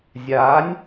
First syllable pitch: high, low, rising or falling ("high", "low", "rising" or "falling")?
rising